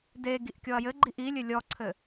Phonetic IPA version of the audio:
d e ɡ i ʔ kʲ ɔ ɐ̯ j ɘ ɡ͡ǃ i ʔ i lʲ ɘ lʲ ɔ ǀʰ ɘ

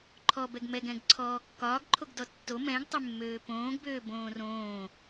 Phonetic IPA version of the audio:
ǃʰ ɔ b ɛ ɡ m ɛ ɡ ɛ̃ ɡ ǀʰ ɔː kː ɒː ɡ ǃʰ o ɡ d ɔ tː o m ɛ̃ ɡ tˤ ɪ mː øː p õː ɡ b øː b õː r õː

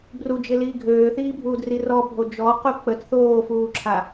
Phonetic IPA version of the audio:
b r u d͡ʒ ɪ l iː ɡʱ øː θ iː bʱ uː d r i r ɔ bʱ o d͡ʒ ɔ q u k͡p ə t θ oː f uː ǁʰ a

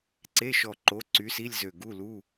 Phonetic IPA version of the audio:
ǀ e˧˥˧ ʃ ɔ˧˩ ǃ o˨˥ ǀ y˨˥ s i˧˥˧ lʲ z ø˧˩ ɡ u˧˥˧ l u˧˥˧

